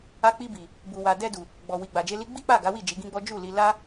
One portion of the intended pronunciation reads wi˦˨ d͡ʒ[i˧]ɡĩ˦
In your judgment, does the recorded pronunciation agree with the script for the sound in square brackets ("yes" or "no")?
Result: no